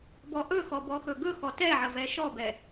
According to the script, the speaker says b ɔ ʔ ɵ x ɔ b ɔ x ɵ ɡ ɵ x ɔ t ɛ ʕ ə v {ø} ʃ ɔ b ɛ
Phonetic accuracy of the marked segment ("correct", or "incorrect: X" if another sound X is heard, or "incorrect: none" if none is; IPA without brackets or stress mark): incorrect: ɛ